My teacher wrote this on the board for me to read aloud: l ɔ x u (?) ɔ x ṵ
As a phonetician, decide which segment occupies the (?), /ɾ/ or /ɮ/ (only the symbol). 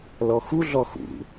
ɮ